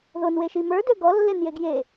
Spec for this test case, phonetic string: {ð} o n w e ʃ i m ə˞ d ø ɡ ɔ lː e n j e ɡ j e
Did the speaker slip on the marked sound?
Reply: no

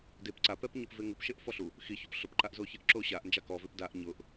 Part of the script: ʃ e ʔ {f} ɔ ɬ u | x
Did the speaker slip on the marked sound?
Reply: no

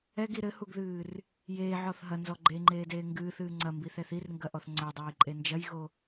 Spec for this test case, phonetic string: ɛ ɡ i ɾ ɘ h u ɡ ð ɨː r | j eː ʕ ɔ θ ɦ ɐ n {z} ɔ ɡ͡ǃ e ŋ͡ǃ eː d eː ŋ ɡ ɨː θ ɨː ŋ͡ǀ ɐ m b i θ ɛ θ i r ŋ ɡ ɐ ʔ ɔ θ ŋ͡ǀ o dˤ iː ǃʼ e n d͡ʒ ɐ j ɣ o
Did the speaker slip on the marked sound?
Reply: no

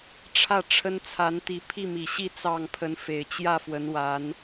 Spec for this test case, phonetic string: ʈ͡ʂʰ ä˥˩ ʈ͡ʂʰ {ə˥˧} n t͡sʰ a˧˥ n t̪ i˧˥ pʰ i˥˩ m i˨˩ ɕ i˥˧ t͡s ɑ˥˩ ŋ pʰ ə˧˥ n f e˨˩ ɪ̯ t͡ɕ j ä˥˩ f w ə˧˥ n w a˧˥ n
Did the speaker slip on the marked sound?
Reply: yes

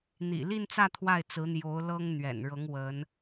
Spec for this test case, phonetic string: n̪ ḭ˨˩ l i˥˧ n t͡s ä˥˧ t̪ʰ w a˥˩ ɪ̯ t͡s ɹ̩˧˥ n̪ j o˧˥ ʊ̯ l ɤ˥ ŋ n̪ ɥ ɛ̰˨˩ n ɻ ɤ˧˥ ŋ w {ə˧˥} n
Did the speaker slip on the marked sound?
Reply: no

